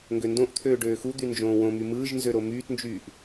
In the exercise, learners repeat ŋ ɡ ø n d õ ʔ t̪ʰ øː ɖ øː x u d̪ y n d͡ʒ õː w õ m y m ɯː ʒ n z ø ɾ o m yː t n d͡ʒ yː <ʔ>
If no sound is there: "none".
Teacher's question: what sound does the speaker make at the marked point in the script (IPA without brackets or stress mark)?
ʔ